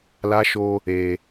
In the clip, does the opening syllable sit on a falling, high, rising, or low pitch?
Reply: high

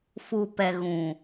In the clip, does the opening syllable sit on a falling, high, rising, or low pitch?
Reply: low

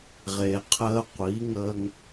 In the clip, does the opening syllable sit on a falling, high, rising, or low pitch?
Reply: low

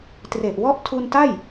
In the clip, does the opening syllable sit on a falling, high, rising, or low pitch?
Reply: low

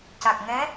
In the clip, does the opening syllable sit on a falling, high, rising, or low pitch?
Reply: low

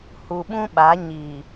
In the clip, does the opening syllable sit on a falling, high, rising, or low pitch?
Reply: low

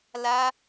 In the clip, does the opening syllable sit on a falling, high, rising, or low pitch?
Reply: high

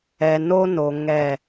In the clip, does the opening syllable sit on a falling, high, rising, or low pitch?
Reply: low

